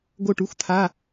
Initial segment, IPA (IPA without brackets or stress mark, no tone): ɡ